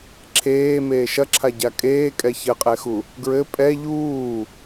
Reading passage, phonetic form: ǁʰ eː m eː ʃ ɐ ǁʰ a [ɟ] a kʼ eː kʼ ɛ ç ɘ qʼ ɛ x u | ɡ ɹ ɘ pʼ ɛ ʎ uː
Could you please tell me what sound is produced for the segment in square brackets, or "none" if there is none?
ɟ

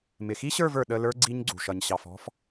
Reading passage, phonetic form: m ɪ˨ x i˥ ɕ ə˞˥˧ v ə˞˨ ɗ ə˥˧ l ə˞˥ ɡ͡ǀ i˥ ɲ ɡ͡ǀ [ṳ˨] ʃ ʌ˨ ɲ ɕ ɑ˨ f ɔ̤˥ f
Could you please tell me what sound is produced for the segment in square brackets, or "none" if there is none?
ṳ˨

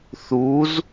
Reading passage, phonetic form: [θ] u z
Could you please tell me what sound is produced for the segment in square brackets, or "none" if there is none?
θ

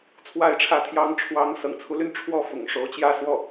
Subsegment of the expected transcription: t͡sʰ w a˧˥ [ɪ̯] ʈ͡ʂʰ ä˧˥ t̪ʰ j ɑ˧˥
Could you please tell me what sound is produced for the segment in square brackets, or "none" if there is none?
ɪ̯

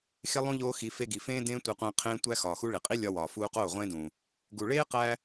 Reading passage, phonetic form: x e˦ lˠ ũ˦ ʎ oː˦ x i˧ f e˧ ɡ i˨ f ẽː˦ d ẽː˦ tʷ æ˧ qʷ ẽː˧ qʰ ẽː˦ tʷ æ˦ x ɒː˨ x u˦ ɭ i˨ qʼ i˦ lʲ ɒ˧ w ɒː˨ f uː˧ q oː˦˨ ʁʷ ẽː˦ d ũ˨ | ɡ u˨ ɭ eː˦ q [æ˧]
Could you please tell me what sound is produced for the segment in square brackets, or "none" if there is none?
æ˧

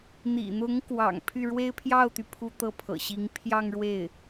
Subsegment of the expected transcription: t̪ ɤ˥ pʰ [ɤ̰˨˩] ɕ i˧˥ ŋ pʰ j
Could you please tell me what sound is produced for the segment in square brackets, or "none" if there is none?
ɤ̰˨˩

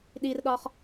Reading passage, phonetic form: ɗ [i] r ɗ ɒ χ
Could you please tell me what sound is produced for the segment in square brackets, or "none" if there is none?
i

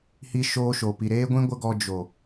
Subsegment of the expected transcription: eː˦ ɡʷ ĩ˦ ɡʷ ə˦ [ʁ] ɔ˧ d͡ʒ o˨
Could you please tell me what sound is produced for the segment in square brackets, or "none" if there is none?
ɡ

